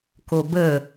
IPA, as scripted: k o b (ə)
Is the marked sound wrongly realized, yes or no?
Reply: no